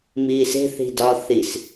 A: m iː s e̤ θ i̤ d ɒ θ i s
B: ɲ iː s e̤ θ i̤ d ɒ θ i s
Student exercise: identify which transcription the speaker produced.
A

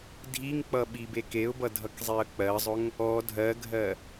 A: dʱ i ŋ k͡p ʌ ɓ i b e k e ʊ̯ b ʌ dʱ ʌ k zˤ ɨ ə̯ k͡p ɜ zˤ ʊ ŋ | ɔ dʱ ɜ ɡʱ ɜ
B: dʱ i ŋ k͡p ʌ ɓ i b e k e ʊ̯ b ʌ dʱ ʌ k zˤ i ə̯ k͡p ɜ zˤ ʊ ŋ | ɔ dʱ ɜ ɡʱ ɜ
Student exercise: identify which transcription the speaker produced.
B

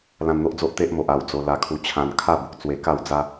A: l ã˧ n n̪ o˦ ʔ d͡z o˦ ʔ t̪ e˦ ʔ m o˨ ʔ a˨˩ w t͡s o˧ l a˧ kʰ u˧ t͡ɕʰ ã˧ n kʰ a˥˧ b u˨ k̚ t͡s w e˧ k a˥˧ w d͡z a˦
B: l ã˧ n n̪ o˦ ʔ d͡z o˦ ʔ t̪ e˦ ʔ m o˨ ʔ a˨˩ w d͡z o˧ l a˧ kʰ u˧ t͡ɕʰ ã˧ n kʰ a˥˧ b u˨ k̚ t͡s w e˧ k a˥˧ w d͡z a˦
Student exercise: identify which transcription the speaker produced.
B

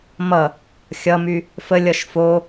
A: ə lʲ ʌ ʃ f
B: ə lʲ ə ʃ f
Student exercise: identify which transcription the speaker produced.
A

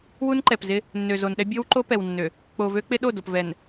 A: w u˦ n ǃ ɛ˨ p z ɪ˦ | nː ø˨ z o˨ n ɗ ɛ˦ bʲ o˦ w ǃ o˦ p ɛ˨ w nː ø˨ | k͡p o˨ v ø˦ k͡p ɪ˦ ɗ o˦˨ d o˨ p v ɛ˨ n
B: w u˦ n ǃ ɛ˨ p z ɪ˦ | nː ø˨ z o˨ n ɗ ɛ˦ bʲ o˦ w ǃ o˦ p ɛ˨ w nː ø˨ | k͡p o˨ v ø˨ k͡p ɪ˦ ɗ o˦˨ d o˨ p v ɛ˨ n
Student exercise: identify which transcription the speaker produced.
A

